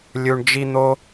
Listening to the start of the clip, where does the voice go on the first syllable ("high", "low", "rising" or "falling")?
high